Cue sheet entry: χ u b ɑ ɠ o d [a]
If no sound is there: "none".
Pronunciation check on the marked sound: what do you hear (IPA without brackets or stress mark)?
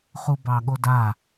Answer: a